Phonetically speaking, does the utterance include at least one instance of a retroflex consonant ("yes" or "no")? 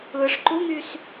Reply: yes